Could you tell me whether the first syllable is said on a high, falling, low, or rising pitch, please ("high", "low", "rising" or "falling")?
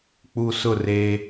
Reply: low